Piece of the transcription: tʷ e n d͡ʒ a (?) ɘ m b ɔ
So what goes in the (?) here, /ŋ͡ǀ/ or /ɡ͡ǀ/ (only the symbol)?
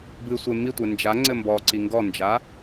ŋ͡ǀ